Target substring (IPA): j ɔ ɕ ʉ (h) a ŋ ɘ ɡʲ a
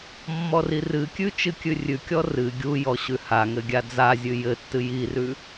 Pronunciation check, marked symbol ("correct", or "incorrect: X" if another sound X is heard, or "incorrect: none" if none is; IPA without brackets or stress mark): correct